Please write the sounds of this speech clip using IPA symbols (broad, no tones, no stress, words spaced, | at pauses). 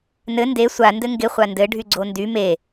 nɘ nde sʷa ndɘŋɡɪ χʷandɘ ɖʱyɡ͡ǀondy me